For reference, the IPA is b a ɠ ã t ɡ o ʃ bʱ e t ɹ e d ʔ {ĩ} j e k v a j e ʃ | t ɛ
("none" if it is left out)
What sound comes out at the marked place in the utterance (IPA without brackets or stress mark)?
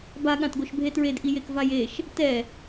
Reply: i